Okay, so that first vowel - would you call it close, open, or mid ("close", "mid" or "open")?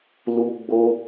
close